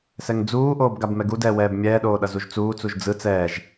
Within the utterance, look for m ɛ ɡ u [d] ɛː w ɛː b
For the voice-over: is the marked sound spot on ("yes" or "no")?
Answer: yes